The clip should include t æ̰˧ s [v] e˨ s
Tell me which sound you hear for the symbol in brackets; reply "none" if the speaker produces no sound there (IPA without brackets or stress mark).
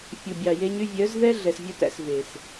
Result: v